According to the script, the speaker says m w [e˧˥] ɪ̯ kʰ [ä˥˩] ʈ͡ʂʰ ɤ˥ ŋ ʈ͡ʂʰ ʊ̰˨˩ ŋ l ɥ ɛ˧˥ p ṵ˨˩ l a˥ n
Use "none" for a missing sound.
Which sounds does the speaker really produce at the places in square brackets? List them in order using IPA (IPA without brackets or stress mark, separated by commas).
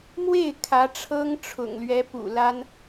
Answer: e˥˩, ä˧˥